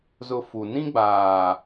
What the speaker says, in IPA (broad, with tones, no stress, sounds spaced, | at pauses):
z ʊ˨ f u˨ n ĩ˦ ɡ͡b aː˨